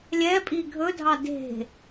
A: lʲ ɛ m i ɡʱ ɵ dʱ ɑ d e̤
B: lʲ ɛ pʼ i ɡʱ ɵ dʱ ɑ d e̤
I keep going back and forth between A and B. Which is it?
B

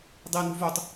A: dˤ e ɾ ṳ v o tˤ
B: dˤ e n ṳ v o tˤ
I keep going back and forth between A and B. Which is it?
B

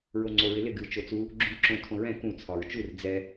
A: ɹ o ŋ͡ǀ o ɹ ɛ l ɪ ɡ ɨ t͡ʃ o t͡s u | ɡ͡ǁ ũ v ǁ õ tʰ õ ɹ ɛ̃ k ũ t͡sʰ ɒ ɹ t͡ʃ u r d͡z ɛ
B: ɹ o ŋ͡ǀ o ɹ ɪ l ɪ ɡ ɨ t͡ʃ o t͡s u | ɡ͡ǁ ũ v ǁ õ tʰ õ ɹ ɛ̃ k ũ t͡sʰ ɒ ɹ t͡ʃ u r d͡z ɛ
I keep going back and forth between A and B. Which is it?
B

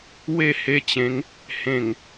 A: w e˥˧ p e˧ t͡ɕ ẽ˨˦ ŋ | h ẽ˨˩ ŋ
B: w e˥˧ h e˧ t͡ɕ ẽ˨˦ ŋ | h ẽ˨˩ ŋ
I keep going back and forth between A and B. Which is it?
B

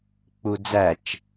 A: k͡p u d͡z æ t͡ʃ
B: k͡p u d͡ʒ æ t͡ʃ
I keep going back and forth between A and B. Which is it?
A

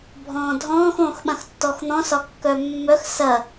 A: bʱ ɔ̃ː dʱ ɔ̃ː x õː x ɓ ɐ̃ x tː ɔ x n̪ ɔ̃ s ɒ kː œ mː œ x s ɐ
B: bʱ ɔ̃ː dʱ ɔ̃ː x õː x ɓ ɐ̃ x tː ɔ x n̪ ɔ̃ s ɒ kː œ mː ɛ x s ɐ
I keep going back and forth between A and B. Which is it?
A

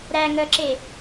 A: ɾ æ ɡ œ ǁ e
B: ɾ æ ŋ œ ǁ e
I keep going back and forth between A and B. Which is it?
B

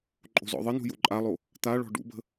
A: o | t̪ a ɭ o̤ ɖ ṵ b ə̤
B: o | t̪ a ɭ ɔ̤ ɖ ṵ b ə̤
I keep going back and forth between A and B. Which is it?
B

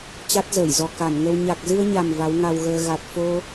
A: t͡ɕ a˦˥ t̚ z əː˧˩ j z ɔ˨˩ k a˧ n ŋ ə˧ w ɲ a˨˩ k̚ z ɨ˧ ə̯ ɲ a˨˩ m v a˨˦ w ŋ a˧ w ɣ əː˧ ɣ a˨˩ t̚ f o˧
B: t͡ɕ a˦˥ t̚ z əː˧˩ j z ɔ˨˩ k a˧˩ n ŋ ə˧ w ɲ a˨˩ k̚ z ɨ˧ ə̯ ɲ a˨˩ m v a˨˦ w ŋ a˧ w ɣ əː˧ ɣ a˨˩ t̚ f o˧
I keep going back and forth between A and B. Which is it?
B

